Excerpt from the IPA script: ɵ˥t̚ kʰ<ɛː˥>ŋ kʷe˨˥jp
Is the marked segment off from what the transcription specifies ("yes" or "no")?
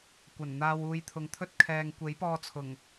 yes